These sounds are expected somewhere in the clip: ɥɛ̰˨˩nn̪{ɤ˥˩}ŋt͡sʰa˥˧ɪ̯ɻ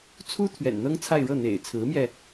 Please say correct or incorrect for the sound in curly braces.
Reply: incorrect